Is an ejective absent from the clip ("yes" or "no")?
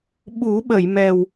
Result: yes